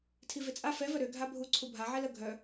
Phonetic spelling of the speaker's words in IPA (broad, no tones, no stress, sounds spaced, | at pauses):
tʰ i v e t͡sʼ a f ɛ v œ ɾ ø ɡʱ a bʱ u ǀʰ u bʱ a ʕ ɛ l ə ɡʱ œ